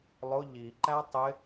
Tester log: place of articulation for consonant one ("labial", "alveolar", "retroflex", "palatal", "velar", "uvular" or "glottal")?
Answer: alveolar